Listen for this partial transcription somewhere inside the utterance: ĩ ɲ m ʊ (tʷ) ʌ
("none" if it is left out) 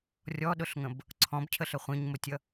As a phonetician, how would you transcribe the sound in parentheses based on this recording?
tʲ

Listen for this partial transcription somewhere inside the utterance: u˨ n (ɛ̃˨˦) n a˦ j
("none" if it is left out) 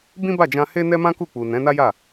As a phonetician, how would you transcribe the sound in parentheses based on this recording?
ɛ̃˨˦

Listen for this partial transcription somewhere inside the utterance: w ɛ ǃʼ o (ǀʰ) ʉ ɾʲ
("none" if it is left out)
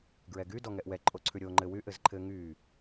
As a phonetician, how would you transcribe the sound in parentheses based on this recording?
ǀʰ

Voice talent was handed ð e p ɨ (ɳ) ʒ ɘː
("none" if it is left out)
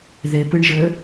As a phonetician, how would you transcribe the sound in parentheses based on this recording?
ɳ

